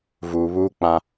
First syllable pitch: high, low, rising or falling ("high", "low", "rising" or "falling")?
low